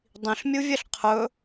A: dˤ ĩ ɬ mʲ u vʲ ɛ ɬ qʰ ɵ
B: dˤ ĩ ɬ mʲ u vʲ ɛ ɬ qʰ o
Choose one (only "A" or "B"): A